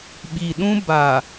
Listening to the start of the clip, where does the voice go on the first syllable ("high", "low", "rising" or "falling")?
low